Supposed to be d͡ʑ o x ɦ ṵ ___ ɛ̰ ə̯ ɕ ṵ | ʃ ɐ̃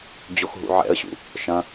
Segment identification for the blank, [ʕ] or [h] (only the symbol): ʕ